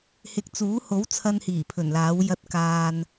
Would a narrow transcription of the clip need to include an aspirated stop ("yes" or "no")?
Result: yes